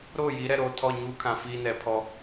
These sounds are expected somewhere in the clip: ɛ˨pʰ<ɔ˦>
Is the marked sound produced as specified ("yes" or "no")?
yes